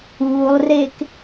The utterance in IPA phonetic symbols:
uːlˠrek

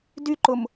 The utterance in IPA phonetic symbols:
dyǃʊm

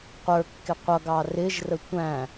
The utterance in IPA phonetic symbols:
qʷə˞kːɪ qʷʌɡɑ rɪʒrə tʷæ̃

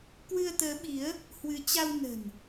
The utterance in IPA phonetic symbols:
kwɨ˧ə̯t̪əː˨˦ɓi˨˦ə̯ | hwɨ˨˦t͡ɕa˧w nə̤˨˩n

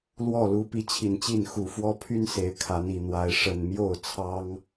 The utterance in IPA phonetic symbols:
lwɔ˥˨lu˨˦ pi˨˦t͡ɕʰi˨˩nt͡ɕi˥˨n xu˨˩fwɔ˦pʰy˦n se˨˦ɪ̯kʰa˨˦n i˨˩n̪wa˨˦ɪ̯ ʂə˨˩nmjo˥˨ʊ̯t͡sʰɑ˦ŋ

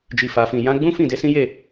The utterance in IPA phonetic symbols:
d͡ʒi˨fa˨fĩ˨ jã˨˦ɡ͡bũ˦ fĩ˦˨de˨˦sĩ˦je˦˨

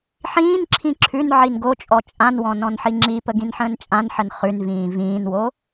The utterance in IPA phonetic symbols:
ħĩːnǁʰĩ ǁʰʉnʕin ɡot͡ʃʼɔ t͡ʃʼãnwɔ̃ nɔ̃nħiŋ͡ǁipə ɡĩnħə̃ːnt͡ʃʼãnħən χʉnvĩː vĩːnwo

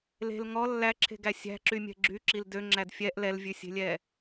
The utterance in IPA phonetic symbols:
le̤l ŋɔ lːæǁʰe̤ɡæ sʲæ̤ǁymʲɛ̤ ɡ͡ǁyǁil døŋ͡ǁæd fʲɛʔ lɛlvʲʉsʲe̤lʲɛ

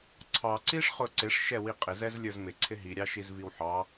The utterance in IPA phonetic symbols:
ǀʰɑǀiʂ χʊǀɪʂʃɛ wiqʼɪzɛz lʲə˞zmɪǀʰɪ ɦiɾʲɑʃiz viwħɑ

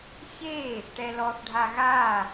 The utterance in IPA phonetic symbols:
çe | ʈɛlɔθɖʱa ɣa

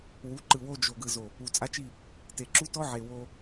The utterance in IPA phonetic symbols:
wu˨˦ǃɯ˨ wo˦d͡ʒo˨ ɡɯ˨zo˨ | u˨t͡sʼa˦t͡ʃi˦˨ | te˨ǁu˦tɔ˦ʕe˨ wo˦

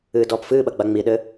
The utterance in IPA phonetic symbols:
ɨːdɔːpfɨːɓɐ ɡ͡baŋ͡miɗɘ

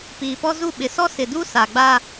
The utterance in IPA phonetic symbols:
piː˨pɔ˦zu˦˨ ɓɪ˨sɔ˦ sɪ˨du˦ sa˨ɡ͡ba˦

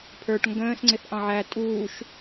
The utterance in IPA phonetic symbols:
pʰə˞ʈ ŋɡə̃ːsŋ͡ǀɪθ ʔɑ̃ʕæ tʼuːʃ

